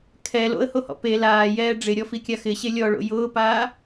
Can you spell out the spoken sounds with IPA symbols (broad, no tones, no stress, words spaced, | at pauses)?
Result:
kʰɛ lo̰ə̯hohɔ̰ pe laːjɛː ɖ͡ʐɪɾʲɔfi kʲaxɪɕe lʲɔɭo̰ jʊːpaː